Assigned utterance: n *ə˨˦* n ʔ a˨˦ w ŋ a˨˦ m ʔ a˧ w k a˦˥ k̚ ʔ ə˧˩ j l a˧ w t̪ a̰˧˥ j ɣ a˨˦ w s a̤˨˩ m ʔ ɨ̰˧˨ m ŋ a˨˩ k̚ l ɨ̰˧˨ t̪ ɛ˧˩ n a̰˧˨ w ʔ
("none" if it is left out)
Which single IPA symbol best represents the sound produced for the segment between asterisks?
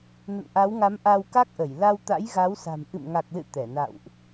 ə̰˧˨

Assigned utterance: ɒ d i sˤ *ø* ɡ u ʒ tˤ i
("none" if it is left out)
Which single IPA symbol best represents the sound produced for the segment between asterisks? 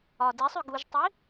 ø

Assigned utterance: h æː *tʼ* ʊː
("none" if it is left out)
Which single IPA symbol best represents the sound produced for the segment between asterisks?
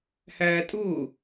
tʼ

